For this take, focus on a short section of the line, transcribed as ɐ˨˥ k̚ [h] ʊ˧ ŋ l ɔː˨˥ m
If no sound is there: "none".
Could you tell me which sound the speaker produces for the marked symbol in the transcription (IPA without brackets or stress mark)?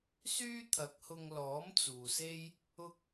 h